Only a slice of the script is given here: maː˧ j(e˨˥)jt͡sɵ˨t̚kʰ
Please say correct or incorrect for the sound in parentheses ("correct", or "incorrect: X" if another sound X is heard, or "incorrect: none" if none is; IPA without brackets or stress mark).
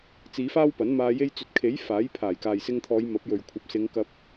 incorrect: e˧